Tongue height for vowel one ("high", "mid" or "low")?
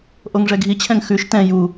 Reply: mid